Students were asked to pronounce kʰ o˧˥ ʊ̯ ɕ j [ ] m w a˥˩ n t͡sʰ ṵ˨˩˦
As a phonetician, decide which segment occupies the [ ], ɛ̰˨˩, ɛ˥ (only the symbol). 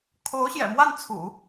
ɛ̰˨˩